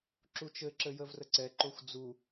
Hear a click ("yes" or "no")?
yes